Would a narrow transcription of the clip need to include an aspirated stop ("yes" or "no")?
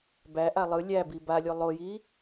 no